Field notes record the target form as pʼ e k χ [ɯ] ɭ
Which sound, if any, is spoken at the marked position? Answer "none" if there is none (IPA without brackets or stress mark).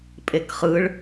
ɯ